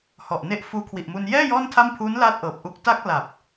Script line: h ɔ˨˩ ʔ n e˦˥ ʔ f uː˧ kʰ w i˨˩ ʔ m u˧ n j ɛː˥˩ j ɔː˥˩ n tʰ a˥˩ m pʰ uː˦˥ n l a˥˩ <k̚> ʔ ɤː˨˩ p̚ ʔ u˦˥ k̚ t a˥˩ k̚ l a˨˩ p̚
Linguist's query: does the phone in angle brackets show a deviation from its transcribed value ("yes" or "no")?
yes